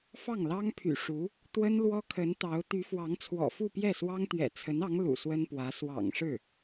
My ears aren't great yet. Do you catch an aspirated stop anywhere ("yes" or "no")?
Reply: yes